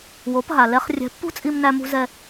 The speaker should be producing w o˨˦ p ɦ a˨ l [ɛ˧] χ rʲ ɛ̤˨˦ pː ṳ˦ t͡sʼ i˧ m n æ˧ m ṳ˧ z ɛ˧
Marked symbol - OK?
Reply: yes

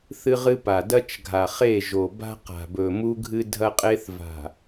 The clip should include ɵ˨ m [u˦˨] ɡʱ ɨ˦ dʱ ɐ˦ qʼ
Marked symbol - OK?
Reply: no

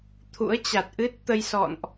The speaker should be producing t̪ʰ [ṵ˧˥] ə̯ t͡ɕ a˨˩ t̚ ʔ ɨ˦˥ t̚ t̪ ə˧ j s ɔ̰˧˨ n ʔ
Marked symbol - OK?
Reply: yes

